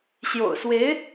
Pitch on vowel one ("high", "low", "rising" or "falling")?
low